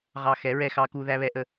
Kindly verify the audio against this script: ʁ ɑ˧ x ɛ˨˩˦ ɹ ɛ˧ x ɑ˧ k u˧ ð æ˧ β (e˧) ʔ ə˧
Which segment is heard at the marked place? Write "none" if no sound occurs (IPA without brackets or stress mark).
ɛ˧